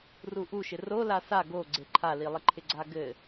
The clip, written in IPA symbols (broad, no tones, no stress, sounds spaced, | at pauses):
r u ʔ u ʃ ɪ r o l a s a ɡ o ɡ͡ǀ e ǃʰ a l i lˠ ɪ ǃʰ ɪ ɡ͡ǀ a ɡ ɘ